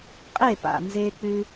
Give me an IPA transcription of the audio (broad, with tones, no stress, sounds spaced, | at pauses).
qʼ e˥˩ p a̰˩ n z e˧ k͡p ʉ˧